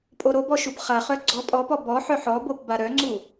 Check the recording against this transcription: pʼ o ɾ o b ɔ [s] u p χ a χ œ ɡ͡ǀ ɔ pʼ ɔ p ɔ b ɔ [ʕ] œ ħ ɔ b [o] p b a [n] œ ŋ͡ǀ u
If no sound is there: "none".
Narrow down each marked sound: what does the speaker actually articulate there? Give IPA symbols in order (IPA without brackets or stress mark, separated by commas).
ʃ, ħ, o, ɾ